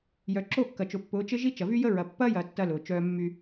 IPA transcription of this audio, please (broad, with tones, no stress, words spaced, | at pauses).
jœ˨ǁo˦˨kːɐ˨t͡ʃʊ˨ pːʊː˨˦t͡ʃɪ˦ʒi˦ t͡ʃɐ˨vy˦jə˦ ɹɐ˨pːɐː˦jɐː˨ tːɐ˦lʊː˨t͡ʃœː˦ mːy˦